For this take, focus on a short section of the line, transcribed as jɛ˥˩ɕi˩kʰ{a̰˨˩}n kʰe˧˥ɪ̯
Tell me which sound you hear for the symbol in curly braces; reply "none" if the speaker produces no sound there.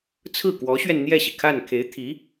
a˥˩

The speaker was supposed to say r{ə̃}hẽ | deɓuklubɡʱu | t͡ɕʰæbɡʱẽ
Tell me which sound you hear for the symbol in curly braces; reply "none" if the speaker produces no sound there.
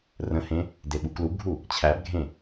ə̃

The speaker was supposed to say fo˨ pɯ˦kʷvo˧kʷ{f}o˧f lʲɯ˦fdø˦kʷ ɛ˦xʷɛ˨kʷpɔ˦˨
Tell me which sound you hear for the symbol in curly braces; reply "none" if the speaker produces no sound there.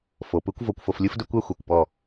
f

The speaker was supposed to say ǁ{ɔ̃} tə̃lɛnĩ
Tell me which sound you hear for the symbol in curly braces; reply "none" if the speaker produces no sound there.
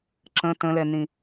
ə̃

